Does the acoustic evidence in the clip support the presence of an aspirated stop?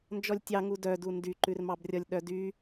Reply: no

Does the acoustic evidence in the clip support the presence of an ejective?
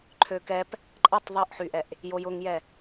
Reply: yes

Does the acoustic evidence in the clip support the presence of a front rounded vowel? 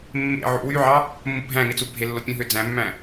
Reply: yes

